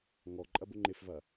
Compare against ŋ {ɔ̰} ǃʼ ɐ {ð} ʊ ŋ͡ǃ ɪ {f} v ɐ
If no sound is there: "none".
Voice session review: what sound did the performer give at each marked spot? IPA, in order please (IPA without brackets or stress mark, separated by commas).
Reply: ɔ, b, f